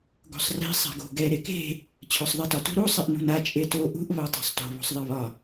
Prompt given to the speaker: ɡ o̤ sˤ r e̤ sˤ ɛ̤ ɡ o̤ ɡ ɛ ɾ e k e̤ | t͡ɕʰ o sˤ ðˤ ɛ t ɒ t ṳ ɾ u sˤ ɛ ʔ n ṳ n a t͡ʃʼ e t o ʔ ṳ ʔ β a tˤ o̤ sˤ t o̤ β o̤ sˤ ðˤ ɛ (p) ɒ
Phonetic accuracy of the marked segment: incorrect: β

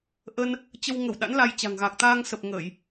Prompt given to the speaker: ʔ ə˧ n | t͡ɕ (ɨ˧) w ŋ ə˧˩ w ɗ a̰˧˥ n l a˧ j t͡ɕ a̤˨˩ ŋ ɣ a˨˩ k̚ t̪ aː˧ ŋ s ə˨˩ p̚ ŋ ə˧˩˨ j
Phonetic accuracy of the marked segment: incorrect: ə˧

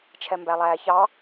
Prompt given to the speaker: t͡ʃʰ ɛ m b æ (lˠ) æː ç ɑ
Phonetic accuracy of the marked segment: correct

